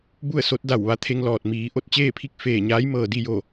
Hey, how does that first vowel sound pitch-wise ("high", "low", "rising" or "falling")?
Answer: falling